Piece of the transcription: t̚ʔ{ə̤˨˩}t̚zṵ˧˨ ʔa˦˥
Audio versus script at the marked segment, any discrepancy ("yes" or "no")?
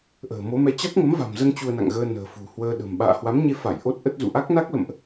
yes